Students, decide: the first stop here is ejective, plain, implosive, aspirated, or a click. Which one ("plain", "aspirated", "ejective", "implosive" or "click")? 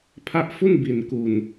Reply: aspirated